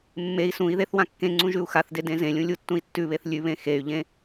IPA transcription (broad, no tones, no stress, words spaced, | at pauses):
mːei̯ sũi̯ðeθ wãkːẽŋ͡ǀũ ʒʉu̯xaθde dẽzẽlʲũ lʲutːũi̯tːʉβeθ lʲʉβẽ xey̯ʎẽ